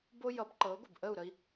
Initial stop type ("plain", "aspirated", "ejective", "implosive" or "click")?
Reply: plain